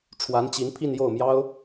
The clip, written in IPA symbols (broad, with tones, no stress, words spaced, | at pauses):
ʈ͡ʂʰwa˧˥nt͡ɕi˧˥n pʰi˥˧njo˥˩ʊ̯mjɑ˥ʊ̯